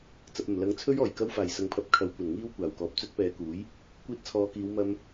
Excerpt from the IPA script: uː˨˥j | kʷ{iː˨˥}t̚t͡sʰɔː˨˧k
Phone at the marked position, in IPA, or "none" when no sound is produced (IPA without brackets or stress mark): iː˧